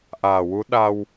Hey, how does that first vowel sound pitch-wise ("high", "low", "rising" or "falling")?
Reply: low